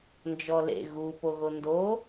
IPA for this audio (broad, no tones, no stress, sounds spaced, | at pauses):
n d͡ʒ ɔ l ḛ ɣ u p o ɣ o n d o